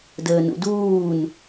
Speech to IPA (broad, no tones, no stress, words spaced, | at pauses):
dəːnṵduːn